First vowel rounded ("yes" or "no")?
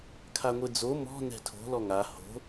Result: no